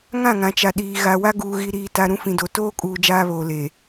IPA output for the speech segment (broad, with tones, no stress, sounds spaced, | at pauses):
ŋ ã˦˨ ŋ ã˨ t͡ʃ a˨ ɗ iː˨ ɣ a˨ w a˦ ɡ uː˨ ɣ i˨ ɾ iː˨ t a˨ ɾ ũ˦ f ĩ˨ d o˨ t oː˦ kʼ uː˨ d͡ʒ aː˦ β oː˨ l eː˨